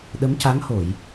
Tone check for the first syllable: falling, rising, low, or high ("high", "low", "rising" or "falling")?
rising